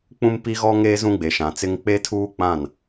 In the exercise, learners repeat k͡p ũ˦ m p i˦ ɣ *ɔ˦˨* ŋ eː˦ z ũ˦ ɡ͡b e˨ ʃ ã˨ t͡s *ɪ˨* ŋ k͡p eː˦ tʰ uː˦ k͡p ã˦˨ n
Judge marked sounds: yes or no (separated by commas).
no, no